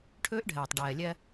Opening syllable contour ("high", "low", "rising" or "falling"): high